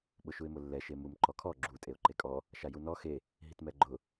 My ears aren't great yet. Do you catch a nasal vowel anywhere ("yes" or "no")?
no